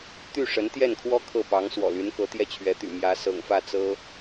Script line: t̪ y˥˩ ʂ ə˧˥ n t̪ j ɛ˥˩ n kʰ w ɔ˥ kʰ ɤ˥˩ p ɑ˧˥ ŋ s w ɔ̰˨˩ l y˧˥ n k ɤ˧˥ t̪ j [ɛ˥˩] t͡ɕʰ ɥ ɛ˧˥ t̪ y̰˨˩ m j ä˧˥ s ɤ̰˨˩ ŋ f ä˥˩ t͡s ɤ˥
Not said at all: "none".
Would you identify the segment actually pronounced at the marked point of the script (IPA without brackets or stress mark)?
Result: ɛ˥˩